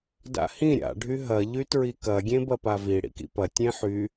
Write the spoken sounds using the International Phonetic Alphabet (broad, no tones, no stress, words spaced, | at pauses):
da̰hĩ ɾʲa̰ ɖʱyɦɐ ʎytɹikɐ ɡʲẽbɐpavi ɽḭkḭpɐ tʲẽħy